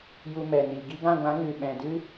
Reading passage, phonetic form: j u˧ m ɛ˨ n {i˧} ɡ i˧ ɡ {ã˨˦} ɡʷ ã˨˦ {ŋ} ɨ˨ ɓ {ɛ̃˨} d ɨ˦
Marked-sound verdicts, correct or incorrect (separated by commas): incorrect, incorrect, correct, correct